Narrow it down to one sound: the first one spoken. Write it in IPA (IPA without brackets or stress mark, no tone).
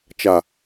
t͡ʃ